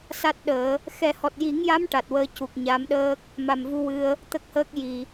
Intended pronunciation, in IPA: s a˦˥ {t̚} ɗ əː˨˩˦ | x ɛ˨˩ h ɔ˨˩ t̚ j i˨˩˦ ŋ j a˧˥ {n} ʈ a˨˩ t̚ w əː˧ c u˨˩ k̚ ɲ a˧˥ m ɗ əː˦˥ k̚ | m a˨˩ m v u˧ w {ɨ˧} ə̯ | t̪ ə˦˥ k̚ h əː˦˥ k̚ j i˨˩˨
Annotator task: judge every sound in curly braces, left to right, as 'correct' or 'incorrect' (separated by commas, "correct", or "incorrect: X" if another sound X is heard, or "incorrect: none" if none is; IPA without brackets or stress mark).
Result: correct, incorrect: m, correct